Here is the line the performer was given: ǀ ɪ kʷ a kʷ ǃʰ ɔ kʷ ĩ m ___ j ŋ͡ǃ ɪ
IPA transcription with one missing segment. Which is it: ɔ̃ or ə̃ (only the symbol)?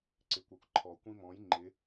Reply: ɔ̃